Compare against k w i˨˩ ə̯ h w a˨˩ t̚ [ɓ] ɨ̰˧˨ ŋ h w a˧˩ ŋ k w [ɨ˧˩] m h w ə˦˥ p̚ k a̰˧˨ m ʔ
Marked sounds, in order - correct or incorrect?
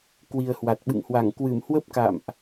correct, correct

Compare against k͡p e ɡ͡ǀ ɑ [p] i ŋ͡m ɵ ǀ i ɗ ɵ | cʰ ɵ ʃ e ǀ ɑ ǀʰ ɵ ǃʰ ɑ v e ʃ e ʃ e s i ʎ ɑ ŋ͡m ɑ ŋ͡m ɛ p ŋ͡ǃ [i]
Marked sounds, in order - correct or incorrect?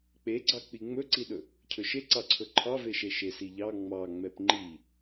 incorrect, correct

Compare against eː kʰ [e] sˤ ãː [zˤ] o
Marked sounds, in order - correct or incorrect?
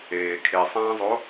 correct, correct

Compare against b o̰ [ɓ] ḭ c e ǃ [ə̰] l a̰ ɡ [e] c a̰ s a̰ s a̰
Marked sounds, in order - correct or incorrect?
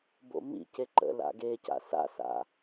incorrect, correct, correct

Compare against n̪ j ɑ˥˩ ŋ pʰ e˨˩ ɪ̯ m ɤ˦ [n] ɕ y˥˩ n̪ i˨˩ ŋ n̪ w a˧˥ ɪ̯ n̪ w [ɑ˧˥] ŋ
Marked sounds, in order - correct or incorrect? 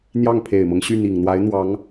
incorrect, correct

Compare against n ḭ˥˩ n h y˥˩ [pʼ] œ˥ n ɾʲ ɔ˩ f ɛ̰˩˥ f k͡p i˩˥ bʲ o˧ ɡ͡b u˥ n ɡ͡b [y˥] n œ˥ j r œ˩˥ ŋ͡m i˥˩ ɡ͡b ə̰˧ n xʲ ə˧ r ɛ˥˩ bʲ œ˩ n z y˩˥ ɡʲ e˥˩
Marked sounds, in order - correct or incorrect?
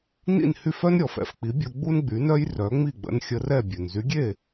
incorrect, incorrect

